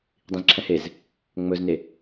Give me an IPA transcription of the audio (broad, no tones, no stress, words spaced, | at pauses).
dˤĩzǁʰɛ̃hez | ŋ͡mɵzne